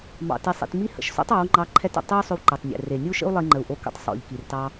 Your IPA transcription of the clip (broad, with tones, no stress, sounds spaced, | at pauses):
m ɑ̰˨ t i˨ sˤ ḭ˨ t m i˧ h ə̰˨ ʃ s o̰˦ tˤ ɑ˨˦ w ŋ͡ǃ ɑ˧ ǃʰ ɛ˧ t ə̰˨ tˤ i˦ u̯ sˤ ʏ˧ w ǃ ɛ˨ tˤ nʲ ɛ̰˨ r e˨ nʲ u˦ ʃ ə̰˦ u̯ lˠ i˧ ŋ͡ǃ ə˨ u̯ ʔ o˧ k ə̰˧ tˤ sˤ o̰˨ ʎ k i˨ r t ɑ˧